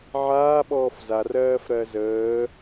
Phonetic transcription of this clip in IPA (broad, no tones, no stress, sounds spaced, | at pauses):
ʕ aː ɓ ɔː f z a r ɜː f ɾ ɜ z əː